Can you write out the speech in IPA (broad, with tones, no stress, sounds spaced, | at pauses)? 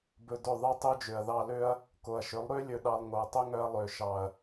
b ɵ˧ d ɵ˦˨ ðˤ e˦ tˤ ø˦ d͡ʒ ø˨ ɐ̯ ð ɑ˧ l ø˦ ɐ̯ | k o˨ ɐ̯ ʃ ɵ˨˦ lˠ ɾ ø˦ lʲ ɵ˧ ɗ ɑ˧ lˠ ŋ o˨ ɐ̯ tˤ ɵ˦ ŋ œ˧ ɐ̯ lˠ ø˨ ʃ ɑ˨ ɐ̯